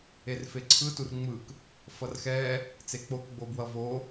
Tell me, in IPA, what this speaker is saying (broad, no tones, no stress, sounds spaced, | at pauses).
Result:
e r f e ǀʰ ɯ t u r ŋ͡m ɯ k | f ʌ r x ɛ | t͡s e k͡p o k ɡ͡b o b w ʌ v o